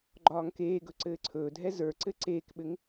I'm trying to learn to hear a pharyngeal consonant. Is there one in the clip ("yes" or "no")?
no